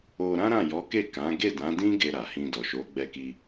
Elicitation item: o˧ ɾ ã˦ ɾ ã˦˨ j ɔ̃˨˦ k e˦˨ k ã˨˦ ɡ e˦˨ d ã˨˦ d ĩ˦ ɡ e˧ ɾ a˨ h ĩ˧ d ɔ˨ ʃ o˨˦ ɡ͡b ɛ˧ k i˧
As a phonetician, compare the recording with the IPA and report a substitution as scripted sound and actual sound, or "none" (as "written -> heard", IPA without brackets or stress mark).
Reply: ɔ̃˨˦ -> ɔ˨˦